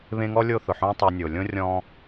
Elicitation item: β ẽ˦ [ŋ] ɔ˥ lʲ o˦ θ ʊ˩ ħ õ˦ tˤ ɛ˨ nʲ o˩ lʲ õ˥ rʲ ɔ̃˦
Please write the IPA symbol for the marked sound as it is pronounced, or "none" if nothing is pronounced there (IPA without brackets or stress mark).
ŋ